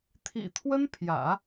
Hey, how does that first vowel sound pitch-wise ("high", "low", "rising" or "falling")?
low